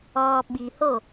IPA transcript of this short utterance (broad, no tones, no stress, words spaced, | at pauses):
ɔ ɓiho